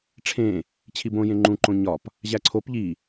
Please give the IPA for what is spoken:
ʈ͡ʂʰẽ | t͡ɕʰibõ jẽŋ͡ǃũ ǃõɲɒp | ʑæǀʰop ʎi

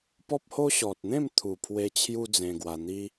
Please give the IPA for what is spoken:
pɔ˦p̚ho˦ ɕɔ˨t̚n̪ẽ˥˧m t̪ʰu˨˩pʰwe˧ t͡ɕʰju˦d͡zẽ˧ɡwa˧n̪i˦

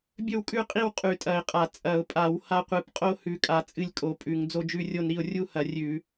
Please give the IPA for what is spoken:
bʲɵ˥˧w kʼʉ˥˧qʼi˥˧w qʼʉ˧˩˧tʼɐ˧˩˧ɪ̯ qʼa˧˩˧ t͡sʼɐ˧˩˧ʊ̯pʼa˧˩˧w ha˥˧qʷɨ˧˩˧p qʼo˥˧ hʉ˧˩˧kʼa˧˩˧ t͡sʼɨ˥˧lʲkʼo˧˩˧ pʼʉ˧˩˧ŋ d͡zo˥˧d͡ʒʉ˥˧rʲo˥˧n ɾi˥˧ʊ̯ rʲu˥˧hɐ˧˩˧ rʲʉ˧˩˧

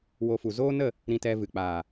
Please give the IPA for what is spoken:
wo˧fu˨ zoː˦nə˦˨ | ɾĩ˧tɛ˧vɨ˨k͡paː˨

